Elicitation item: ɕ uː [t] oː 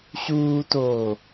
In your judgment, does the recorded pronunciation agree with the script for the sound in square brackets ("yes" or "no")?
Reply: yes